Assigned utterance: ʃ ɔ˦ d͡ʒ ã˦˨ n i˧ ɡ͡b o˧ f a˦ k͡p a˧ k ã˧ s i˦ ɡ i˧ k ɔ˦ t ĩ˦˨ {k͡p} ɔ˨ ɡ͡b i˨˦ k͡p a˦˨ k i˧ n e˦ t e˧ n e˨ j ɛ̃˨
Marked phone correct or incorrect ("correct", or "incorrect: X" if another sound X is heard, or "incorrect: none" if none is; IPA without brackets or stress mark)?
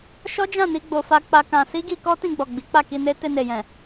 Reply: incorrect: ɡ͡b